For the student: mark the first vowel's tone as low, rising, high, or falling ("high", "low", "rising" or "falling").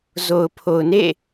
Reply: low